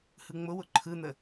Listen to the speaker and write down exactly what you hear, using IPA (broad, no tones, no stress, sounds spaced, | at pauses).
h ɯ ŋ͡m ʊ w ʊ ǃʰ ɯ n̪ ə